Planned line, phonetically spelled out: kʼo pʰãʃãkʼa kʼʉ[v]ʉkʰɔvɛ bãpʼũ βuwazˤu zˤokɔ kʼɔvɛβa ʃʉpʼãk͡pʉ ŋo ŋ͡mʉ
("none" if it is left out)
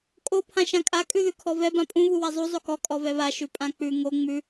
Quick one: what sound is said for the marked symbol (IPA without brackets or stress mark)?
ð